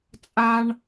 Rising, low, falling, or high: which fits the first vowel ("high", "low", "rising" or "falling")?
high